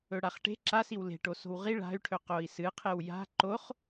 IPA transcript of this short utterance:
ɵ ɽ a χ ʈ e̤ ǁ a s i w l e̤ ʈ o s o̤ w ʁ i ɭ a̤ y̯ ʈʰ ɵ q o i̯ s ɨ qʰ e w j a̤ ǃ o χ

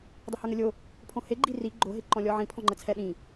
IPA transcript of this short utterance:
dˤ ə h ə˞ ŋ ə lʲ o | pʰ õ h e ɡ͡ǃ i r i ɡ͡ǃ o ɦ e ǃ ɔ̃ lʲ ɔ ʕ ĩ pʰ ɔ̃ ŋ͡ǃ ə t͡sʰ ɛ ɗ ĩ

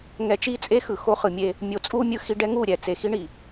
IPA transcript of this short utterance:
ŋ ɛ˨ t͡ʃ i˦˨ t͡sʼ e˦ x ɯ˨ x o˦ χ ɯ˨ mʲ e˦ | mʲ o˨ t͡sʼ u˦ mʲ ɯ˦ x i˦ ɖ ɛ˦ ŋ u˦˨ ɾʲ ɛ˨ t͡s e˨ x i˦ ɳ i˨

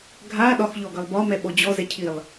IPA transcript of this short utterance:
ɡʱ a ɗ ɒ x ʎ ɔ ɡ ʌ lˠ b ɒ m ɛ ɓ ɔ d͡ʑ ɔ z ɛ cʰ i lˠ

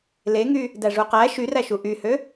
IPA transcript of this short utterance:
l e ŋ y | d æ ʐ u q æ ʃ y r æ ʃ u ʔ y h ø

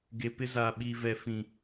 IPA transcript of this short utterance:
ɡ e˨ p ɪ˦ z aː˨ ɓ iː˨ v ɛ˨ f ĩ˨

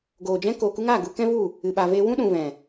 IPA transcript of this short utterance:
ɡ oː˨ d͡ʒ ɛ̃˦ k oː˨ k u˦ ŋ aː˦˨ ɡ u˧ k ɛ̃˦ v u˦˨ | ɨ˨ ɓ a˨ v eː˧ w ũ˦ ɗ ũ˨ v ɛ̃˨

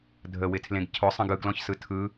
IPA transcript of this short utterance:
dʱ ə w ɪ tʰ l ẽ ɡ cʰ ʊ sˤ ə̃ ɡ ɯ ɡ l ɔ̃ ç s ɯ tʰ ɯ

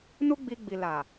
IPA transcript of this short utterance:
n u˦ ɡ͡b i˧ ɡ͡b i˨ l a˨

